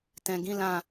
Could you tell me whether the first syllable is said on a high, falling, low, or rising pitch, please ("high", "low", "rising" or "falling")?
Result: low